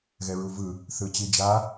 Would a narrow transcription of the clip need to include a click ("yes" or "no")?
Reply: no